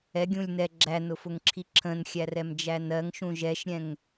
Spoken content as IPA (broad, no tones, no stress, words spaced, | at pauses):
ɛɡʲũlʲ nɛ ɡ͡ǁænʊfʊŋǁʰi ǁʰə̃nxʲærɛmd͡ʒæ nɜŋʃũ ʒɛʃɾʲɛ̃ŋ